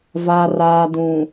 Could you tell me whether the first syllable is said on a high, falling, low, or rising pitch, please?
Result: low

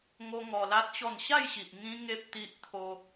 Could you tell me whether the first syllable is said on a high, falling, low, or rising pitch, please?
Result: high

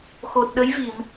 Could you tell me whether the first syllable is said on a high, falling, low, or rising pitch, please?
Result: low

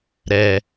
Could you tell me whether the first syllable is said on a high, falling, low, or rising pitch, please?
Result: low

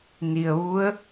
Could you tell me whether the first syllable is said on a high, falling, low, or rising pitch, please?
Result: low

